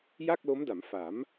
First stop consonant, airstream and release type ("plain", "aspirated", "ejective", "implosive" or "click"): plain